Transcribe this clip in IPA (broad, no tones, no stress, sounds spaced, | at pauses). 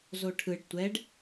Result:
z o ʈʰ ɯ ɖ tʷ ɛ ɖ